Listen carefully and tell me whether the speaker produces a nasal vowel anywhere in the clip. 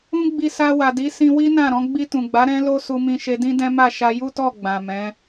yes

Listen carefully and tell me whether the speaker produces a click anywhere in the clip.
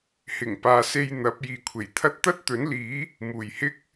no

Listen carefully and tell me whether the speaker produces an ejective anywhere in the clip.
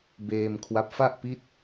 no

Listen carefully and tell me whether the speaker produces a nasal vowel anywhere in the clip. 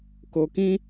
yes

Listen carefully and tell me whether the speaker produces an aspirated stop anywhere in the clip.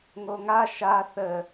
no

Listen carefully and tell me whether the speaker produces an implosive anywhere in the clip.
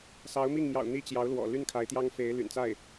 no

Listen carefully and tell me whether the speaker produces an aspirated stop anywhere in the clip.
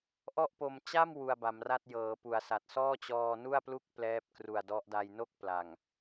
no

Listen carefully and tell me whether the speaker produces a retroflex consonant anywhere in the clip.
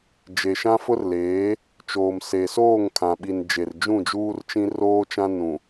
no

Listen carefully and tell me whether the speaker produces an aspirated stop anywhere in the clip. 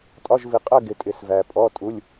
no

